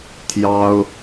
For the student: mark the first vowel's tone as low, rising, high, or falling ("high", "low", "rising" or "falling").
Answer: high